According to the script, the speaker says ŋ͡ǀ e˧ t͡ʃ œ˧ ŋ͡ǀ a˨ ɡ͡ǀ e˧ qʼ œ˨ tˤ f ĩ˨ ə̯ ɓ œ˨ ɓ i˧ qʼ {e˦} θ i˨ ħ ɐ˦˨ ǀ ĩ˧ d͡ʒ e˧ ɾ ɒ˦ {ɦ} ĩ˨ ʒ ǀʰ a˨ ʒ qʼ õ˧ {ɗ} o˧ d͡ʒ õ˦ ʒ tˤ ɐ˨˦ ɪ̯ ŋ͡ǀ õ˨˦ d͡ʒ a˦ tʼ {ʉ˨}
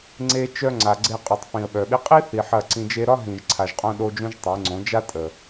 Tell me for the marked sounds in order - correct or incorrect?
incorrect: i˦, correct, correct, incorrect: ə˨

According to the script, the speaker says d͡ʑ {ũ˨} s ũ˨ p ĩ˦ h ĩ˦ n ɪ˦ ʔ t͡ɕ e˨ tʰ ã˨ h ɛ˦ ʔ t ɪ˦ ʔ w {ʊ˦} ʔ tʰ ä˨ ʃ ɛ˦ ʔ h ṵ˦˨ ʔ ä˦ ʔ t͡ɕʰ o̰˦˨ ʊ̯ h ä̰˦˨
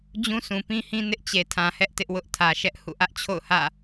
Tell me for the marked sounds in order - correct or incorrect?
incorrect: ũ˦, correct

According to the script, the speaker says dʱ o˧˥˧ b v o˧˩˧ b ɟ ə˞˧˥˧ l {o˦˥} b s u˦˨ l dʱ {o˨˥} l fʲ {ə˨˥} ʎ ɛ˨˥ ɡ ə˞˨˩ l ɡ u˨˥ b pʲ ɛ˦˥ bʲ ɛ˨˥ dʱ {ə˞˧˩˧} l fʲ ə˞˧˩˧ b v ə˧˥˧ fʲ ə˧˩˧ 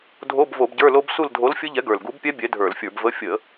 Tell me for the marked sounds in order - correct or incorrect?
correct, correct, incorrect: ə˦˥, correct

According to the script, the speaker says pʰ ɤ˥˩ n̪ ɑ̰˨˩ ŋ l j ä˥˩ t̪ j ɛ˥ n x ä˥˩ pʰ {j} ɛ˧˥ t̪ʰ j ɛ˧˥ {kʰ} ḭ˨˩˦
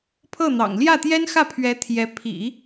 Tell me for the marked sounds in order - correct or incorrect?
incorrect: ɥ, incorrect: pʰ

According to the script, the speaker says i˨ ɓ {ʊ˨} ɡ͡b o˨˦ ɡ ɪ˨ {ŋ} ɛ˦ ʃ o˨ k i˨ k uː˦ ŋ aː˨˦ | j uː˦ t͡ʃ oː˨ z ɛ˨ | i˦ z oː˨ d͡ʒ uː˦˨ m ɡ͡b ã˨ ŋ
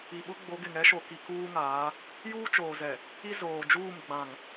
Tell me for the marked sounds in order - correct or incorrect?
incorrect: ʊ˦, correct

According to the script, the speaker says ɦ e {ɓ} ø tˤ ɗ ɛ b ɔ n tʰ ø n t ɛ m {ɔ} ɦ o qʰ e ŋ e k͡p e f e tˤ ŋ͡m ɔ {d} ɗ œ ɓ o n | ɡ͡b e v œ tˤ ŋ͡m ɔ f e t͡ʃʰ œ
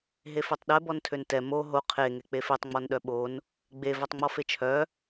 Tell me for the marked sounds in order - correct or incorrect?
incorrect: f, incorrect: o, incorrect: n

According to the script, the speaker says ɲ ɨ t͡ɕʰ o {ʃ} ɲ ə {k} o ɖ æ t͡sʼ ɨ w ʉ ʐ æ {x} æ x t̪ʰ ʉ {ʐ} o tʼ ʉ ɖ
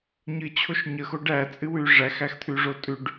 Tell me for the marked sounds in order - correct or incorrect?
correct, incorrect: x, correct, correct

